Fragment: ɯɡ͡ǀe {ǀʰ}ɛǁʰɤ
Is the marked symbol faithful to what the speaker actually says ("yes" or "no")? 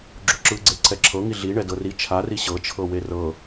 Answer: yes